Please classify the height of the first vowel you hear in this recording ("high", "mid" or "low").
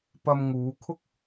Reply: low